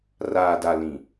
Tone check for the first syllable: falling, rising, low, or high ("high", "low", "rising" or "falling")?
low